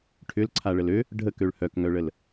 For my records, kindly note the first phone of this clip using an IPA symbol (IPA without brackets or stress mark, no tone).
ʈʰ